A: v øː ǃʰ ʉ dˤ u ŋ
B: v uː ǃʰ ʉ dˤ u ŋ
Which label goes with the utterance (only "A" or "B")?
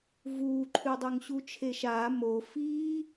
B